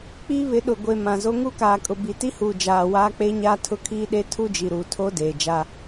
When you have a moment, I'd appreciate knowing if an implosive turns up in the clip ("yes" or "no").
yes